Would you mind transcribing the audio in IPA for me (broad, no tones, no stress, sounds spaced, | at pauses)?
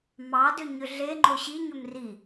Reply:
m ɑ d ʏ ɲ ʏ ɮ e ŋ͡ǃ o ɕ i ɲ ʏ m r i